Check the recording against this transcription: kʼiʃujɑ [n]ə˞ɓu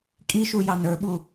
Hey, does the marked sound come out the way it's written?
yes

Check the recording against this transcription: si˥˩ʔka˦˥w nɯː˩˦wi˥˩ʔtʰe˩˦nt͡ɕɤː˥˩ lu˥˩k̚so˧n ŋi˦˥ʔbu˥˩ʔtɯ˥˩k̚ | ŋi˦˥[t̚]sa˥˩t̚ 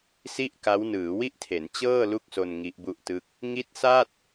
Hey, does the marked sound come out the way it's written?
yes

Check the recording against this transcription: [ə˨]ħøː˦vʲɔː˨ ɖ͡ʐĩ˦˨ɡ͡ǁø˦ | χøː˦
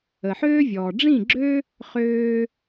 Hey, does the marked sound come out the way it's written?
yes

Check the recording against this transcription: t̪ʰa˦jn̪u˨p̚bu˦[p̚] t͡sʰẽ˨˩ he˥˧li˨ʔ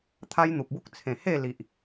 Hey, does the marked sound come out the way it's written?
no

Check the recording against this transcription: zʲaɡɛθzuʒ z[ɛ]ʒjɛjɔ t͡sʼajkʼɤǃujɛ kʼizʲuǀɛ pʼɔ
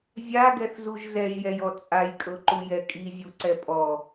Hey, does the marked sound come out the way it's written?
yes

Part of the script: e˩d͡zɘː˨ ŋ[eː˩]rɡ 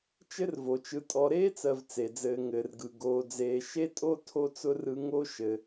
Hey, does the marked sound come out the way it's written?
no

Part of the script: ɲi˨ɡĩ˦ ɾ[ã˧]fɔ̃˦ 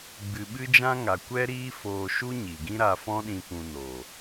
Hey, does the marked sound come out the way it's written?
no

